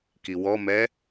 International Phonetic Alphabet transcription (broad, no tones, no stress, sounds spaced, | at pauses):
k i w ɔ m ɛ